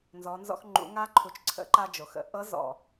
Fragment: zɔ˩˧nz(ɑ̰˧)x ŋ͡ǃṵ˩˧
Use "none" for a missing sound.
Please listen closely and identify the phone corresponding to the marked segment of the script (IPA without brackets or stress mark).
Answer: ɔ̰˧